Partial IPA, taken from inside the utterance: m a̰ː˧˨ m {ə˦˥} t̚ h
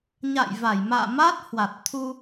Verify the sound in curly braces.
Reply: incorrect: a˦˥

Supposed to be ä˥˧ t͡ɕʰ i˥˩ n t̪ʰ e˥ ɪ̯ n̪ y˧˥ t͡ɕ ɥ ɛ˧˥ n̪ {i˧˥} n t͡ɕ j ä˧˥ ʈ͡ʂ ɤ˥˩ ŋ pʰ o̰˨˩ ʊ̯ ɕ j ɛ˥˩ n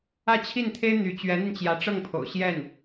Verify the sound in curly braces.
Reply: incorrect: i˧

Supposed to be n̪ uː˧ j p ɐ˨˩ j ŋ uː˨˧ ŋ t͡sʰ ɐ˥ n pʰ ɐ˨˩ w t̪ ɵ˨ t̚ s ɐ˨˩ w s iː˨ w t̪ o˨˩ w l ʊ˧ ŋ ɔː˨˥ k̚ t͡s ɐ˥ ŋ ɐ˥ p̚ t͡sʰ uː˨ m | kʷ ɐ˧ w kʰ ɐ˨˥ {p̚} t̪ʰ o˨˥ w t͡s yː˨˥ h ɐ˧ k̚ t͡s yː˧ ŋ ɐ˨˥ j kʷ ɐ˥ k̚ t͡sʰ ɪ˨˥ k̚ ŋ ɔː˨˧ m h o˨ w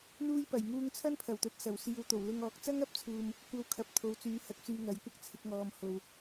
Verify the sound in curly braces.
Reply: correct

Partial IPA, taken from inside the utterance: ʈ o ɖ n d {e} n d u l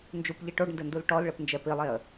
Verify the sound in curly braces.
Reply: incorrect: ɘ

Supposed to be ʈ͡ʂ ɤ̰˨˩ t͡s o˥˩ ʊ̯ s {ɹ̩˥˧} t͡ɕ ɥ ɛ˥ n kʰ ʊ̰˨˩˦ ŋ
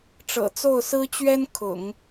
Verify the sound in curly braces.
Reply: incorrect: ɹ̩˥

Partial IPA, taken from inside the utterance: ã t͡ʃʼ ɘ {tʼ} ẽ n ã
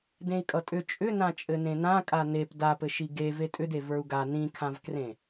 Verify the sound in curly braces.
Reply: incorrect: n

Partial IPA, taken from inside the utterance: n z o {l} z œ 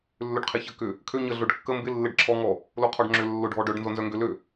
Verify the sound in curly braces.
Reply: incorrect: n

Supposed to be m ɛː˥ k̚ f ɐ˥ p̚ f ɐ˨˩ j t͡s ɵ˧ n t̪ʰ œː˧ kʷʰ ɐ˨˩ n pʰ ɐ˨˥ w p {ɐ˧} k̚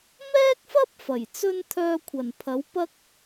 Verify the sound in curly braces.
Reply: incorrect: ɐ˥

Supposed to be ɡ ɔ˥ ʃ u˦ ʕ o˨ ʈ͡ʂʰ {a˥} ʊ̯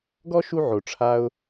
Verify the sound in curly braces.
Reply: correct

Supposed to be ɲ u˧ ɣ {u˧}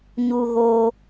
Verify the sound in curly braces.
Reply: incorrect: o˧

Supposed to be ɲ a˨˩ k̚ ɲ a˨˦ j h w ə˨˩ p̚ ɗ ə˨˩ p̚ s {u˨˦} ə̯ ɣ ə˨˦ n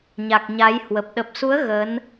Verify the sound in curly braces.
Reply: correct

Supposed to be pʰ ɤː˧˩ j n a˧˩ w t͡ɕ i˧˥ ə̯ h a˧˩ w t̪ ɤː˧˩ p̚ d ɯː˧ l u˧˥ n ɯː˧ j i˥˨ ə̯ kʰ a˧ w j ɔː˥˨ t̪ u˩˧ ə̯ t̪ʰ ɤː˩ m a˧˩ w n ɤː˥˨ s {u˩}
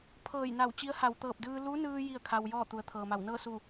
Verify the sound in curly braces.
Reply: incorrect: u˧˩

